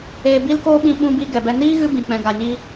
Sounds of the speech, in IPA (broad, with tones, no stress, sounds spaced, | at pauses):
eː˧ b i˦ l k oː˦ ɓ ĩ˧ ɓ ũ˧ b i˧ ɡ ɛ˨ b ɛ˧ n iː˦ ɣ ɨ˦ b ĩ˨ k͡p ɛ̃˨ ɡ a˨ ɲ iː˦